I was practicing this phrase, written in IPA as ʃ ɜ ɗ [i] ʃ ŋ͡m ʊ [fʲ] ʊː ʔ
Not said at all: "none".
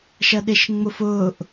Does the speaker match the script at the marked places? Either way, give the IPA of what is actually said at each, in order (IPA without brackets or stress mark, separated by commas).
ɪ, f